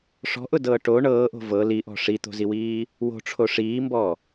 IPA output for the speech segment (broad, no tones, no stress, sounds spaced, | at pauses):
ʂ ɔ̤ ʔ ʊ d ɤː ʈ o ɳ ɤː ʔ o̤ v ɤ l i ʔ ɔ̤ ʂ i t̪ o̤ z i w iː | w o̤ ʈ͡ʂʰ o ʂ iː m b ɔ